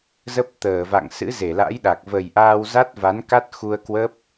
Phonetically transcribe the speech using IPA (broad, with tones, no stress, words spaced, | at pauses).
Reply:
zə˦˥p̚t̪əː˧˩va̰˧˨ŋ sɨ̰˧˥ze˧˩la̰˧˥jɗa˨˩k̚ və˨˩j ʔaː˧wza˦˥t̚va˨˦n ka˦˥t̚xu˧ə̯kwə˦˥p̚